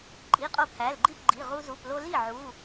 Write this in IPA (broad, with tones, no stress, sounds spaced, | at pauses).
ǃʼ i˩˧˩ qʼ o˧ pʰ æ˩˧˩ l ɡ͡ǃ i˥˩ p ɡ͡ǃ i˩˧˩ ʁ u˧ z u˩˧˩ p l o˧ l i˥˩ ʕ u˩˧˩